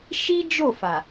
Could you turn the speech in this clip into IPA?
ʃ i˦ d͡ʒ o˦˨ f a˨

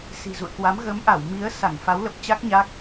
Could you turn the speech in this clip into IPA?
s i̤˨˩ z ṵ˧˨ ə̯ k w a˨˦ m ɣ ə˨˦ m ʔ a˧˩ w m i˨˦ ə̯ s a˧˩ ŋ f a˨˦ w l ə˨˩ p̚ t͡ɕ a˦˥ k̚ ɲ a˦˥ k̚

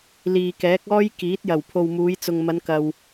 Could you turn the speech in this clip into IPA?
l iː˨ k ɛː˨˥ k̚ ɔː˥ j k iː˨˥ t̚ j ɐ˨˩ w pʰ o˨ w m uː˨˧ j t͡s ʊ˨ ŋ m ɐ˨˧ n k ɐ˨ w

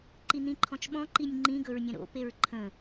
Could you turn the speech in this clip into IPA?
ǃ i n̪ ĩ ǃʰ ɔ̃ t͡ʃ ɓ ɔ̃ ǃ i nʲ ŋ͡ǃ ĩ ɡ ɵ ɹ nʲ ə̃ ɾ o̰ p e ɹ ǃʰ ə̃

